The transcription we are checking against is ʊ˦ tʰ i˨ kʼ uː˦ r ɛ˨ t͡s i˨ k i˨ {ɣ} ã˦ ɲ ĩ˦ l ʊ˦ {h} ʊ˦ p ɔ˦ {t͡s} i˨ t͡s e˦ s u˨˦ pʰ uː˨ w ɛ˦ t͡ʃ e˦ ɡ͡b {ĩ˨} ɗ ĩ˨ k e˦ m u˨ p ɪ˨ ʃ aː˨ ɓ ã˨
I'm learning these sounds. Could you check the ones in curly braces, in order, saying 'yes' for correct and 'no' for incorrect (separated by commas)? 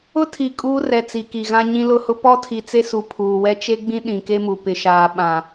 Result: yes, yes, no, no